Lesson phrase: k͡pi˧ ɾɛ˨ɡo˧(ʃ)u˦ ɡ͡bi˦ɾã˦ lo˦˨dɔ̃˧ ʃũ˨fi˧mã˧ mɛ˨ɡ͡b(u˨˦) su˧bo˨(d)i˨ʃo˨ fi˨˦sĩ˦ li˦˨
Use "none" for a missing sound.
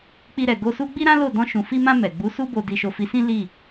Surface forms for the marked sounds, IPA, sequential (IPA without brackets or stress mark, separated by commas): s, u˨˦, d